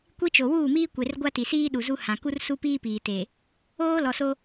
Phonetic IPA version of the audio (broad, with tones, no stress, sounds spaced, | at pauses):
kʷ i˦ t͡ʃ o˨ w uː˦˨ m iː˦ kʷ e˨ r ɡʷ a˦ t i˨ s iː˦ ɗ u˨ z u˦ h ã˨ k u˦ r s u˦ p iː˦ p iː˨ t e˨ | oː˦ l ɔ˨ s o˦